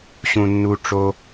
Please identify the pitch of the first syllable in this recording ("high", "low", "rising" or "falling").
low